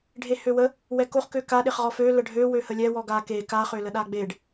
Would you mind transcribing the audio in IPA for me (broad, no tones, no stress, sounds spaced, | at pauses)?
ɖʱ e h ø w ə | w ɛ k o χ k ø k a ɗ e χ ʁ ɔ f ø l ə ɖʱ ø w ø h ə lʲ ɛ w ɔ ɡ a k e k a χ ø l ə ɗ a ɡ͡b e ɖ